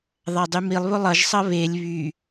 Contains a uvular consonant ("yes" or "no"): no